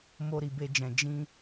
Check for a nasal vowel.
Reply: present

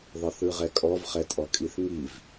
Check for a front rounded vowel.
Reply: absent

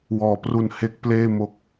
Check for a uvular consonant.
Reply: absent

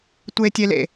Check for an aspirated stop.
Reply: absent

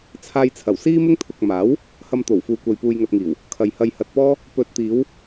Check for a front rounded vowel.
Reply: absent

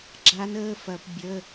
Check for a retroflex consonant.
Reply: absent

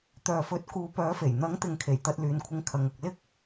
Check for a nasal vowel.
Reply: absent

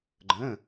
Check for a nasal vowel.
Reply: present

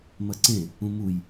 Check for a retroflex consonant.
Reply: absent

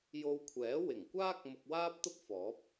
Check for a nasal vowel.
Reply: absent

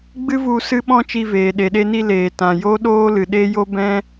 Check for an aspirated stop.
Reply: absent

